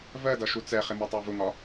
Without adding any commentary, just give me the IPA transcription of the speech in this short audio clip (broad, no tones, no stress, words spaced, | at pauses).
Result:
vɜdʌ ʃut͡sɛχɪ mɜtˤɑvʊŋɒ